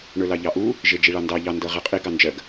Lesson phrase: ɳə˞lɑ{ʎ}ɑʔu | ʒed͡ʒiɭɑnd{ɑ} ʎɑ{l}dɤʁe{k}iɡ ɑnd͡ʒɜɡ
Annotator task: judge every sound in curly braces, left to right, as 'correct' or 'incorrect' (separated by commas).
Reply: correct, correct, incorrect, incorrect